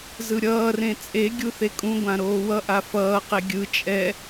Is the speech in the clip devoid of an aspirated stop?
yes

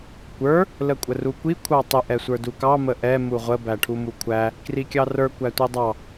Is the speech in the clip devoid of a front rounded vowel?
yes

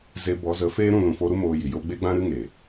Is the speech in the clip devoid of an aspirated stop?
yes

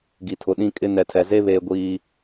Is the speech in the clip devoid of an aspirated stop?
no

